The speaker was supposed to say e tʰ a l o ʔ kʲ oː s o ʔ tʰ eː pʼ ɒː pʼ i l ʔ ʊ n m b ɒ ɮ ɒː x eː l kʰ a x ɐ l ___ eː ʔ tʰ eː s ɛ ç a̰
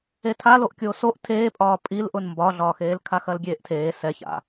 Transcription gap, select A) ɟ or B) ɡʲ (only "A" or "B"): B